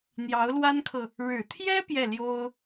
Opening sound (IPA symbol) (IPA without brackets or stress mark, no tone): n̪